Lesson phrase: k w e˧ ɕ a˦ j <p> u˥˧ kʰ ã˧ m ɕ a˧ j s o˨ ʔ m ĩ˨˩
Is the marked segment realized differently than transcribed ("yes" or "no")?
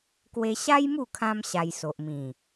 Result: yes